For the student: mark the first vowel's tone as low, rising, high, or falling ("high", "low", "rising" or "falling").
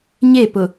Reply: falling